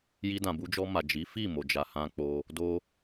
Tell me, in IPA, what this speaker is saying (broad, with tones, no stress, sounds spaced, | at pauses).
j i˧ d ã˨ b u˧ d͡ʒ ɔ˧ m a˨ d͡ʒ i˨˦ f i˦˨ m o˨ d͡ʒ a˨ h ã˧ k͡p o˧ | d o˧